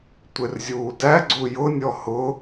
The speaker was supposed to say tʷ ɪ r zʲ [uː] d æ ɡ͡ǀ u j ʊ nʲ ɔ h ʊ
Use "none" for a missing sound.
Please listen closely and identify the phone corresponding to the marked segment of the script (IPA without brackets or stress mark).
uː